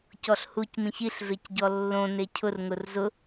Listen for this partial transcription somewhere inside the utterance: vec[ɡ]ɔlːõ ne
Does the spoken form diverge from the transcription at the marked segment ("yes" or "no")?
yes